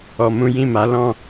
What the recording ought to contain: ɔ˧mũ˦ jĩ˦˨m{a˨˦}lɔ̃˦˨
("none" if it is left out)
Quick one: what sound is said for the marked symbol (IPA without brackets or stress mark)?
a˨˦